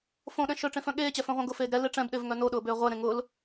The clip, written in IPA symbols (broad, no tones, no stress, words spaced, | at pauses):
fõɗɛ̃ ʃœʈ͡ʂẽfœ̃ ɠeːt͡ɕɛfœ̃ʁʷœ̃ ɡʊfeːɡ ɾɛle ʈ͡ʂɛ̃bɗevŋœ noɗʊːbʏː ʁʷɛɾẽ ŋʊl